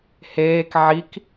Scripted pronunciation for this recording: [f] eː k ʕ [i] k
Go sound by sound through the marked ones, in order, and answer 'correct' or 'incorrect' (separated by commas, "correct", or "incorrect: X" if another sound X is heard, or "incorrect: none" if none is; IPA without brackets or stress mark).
incorrect: h, correct